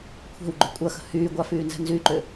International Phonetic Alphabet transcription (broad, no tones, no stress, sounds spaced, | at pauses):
kʷʰ ɛ̤ w ɡ͡ǃ ʏ kʷʼ ɐ x ə̤ h yː ɡʷ a f yː n z ɛ̤ n z y ǃ ʏ